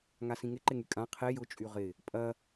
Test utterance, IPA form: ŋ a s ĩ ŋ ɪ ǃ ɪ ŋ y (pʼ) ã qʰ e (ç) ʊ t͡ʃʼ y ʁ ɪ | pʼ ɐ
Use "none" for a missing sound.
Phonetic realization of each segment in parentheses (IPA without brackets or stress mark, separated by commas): kʼ, j